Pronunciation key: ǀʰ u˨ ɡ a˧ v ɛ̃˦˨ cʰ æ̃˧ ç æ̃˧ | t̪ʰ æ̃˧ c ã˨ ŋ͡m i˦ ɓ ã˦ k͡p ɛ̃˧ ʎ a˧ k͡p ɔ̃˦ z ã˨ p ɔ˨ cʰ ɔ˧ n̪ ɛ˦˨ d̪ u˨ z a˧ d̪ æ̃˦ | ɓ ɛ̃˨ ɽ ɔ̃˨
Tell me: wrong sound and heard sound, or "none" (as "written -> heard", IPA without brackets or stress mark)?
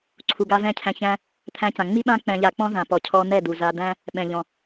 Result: ɽ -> ʎ